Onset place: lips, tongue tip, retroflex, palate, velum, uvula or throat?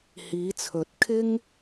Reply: throat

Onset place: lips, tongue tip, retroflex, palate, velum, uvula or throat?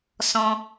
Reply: tongue tip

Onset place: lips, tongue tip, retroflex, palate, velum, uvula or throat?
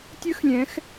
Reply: tongue tip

